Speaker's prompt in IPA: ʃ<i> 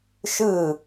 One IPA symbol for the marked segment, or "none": ɨ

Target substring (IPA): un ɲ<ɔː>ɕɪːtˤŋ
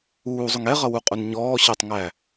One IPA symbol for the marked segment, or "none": ɔː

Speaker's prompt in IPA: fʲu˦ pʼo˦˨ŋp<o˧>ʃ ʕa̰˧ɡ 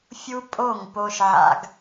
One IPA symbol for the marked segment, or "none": o˧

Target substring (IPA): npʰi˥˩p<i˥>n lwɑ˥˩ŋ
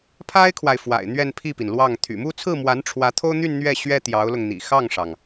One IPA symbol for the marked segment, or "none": i˩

